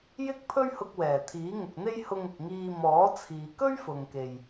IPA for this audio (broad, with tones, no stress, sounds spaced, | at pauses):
j ɪ˥ k̚ pʰ ɵ˥ ɥ h ʊ˧ k̚ w ɛː˨˩ t̪ʰ iː˨˥ ŋ ʊ˨ k̚ n̪ e˥ j h ʊ˧ ŋ ʊ˨ k̚ ŋ iː˧ m ɔː˨˥ t͡sʰ iː˨ k ɵ˥ ɥ f ʊ˨ ŋ k e˨ j